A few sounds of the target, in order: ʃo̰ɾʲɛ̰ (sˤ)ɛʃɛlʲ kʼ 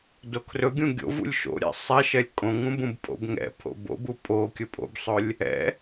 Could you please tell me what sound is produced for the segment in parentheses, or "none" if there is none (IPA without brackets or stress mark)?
sˤ